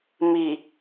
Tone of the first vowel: low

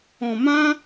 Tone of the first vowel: low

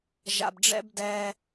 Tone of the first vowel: low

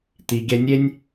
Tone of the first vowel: low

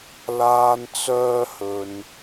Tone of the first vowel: high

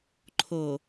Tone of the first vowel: low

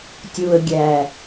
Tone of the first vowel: low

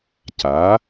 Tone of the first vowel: rising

